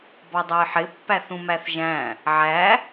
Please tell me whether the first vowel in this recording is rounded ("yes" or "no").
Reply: yes